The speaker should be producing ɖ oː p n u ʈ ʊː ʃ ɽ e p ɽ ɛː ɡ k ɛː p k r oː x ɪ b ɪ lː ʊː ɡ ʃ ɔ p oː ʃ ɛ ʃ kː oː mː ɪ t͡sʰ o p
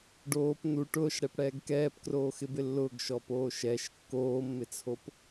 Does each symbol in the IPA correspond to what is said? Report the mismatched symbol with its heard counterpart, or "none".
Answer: none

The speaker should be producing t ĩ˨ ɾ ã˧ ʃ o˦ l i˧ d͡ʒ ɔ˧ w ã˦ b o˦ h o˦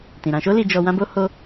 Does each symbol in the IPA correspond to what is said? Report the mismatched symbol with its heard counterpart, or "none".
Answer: none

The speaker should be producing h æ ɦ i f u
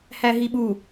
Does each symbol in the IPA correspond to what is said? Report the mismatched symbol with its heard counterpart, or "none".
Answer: f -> ɓ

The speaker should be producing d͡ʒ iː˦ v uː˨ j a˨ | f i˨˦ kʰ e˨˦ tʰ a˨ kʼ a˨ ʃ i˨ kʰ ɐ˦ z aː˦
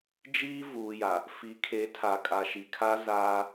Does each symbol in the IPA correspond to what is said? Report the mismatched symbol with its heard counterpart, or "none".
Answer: ɐ˦ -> a˦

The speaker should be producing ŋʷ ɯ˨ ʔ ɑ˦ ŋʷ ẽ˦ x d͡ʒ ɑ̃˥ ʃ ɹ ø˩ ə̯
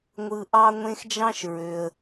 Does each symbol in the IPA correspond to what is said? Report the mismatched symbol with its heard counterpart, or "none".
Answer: none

